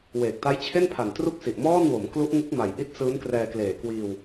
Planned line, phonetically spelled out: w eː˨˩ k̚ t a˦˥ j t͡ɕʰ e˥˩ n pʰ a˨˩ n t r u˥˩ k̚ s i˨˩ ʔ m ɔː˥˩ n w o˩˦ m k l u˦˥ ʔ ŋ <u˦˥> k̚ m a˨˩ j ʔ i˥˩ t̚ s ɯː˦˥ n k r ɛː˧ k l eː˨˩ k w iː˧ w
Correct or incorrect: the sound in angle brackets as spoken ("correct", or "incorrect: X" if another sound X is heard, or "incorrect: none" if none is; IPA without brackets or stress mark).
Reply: incorrect: ɯ˦˥